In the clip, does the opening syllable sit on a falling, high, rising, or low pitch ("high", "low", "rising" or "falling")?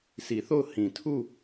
low